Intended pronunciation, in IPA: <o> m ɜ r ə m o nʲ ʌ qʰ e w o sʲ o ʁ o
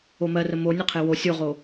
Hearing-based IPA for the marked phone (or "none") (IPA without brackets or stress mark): o